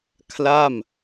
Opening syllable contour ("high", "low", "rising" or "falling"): falling